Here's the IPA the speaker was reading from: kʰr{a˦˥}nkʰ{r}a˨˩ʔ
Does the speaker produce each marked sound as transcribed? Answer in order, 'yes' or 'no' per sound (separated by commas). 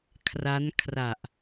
yes, yes